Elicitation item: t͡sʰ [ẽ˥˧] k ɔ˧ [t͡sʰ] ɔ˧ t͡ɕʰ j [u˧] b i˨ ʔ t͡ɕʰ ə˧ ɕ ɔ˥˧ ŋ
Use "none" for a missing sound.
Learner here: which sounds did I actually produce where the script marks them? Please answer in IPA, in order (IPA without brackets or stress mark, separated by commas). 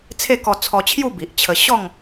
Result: e˥˧, t͡sʰ, u˥˧